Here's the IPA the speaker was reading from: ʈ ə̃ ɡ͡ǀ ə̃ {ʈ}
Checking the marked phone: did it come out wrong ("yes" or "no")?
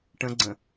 yes